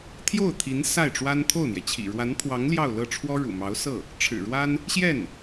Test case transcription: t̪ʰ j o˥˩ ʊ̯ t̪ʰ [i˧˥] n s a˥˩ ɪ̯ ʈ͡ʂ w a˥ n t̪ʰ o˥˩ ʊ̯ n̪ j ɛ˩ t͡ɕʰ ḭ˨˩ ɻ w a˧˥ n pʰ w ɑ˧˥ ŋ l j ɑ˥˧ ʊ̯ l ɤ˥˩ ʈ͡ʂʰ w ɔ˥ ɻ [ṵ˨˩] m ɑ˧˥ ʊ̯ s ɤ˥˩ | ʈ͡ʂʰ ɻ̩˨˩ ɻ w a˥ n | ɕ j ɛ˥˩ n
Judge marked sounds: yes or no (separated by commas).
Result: yes, yes